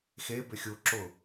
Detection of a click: present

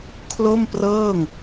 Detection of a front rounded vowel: absent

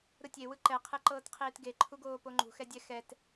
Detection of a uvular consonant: present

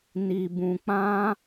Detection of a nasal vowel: present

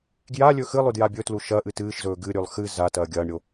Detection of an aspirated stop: absent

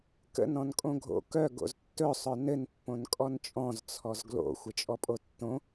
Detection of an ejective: present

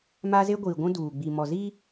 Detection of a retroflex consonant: absent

